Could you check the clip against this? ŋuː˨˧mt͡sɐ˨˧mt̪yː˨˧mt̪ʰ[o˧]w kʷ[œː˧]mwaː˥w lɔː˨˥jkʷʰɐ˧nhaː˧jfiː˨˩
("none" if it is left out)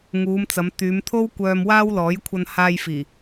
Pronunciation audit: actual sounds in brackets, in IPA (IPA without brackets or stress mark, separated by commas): o˥, œː˧